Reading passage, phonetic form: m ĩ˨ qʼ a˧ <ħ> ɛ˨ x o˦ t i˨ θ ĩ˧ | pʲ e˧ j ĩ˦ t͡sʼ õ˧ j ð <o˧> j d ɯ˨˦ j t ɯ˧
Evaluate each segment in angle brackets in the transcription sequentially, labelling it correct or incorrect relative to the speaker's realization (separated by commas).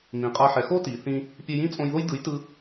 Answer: correct, incorrect